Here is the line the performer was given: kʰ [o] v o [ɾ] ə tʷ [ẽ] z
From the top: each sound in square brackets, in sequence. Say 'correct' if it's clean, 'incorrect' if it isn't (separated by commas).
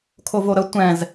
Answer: correct, correct, incorrect